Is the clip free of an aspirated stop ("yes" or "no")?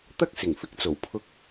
no